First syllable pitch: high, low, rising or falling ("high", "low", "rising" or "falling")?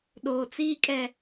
low